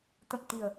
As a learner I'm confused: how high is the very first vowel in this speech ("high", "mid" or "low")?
mid